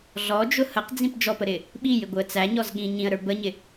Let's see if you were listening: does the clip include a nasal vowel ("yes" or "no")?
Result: yes